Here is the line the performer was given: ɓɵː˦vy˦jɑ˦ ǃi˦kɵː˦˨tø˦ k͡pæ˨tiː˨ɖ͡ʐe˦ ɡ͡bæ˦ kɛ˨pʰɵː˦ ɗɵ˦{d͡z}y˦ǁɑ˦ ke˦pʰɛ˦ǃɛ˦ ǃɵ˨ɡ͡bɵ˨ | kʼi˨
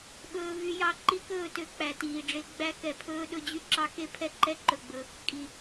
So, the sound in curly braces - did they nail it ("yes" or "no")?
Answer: no